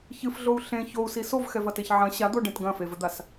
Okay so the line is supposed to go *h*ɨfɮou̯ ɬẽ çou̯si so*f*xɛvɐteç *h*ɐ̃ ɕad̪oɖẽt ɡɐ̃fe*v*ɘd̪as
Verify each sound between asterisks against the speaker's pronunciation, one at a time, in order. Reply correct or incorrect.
incorrect: ç, incorrect: v, incorrect: ʕ, correct

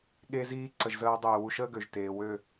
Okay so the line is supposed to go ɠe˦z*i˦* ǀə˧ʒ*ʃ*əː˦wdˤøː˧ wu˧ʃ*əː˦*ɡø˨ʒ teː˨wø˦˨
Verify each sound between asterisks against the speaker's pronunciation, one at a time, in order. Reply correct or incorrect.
incorrect: iː˦, incorrect: z, correct

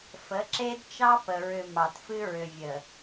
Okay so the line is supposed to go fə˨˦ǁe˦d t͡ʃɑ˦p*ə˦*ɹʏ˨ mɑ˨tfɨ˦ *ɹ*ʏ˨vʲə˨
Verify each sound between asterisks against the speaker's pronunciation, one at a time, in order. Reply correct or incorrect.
incorrect: ə˨, correct

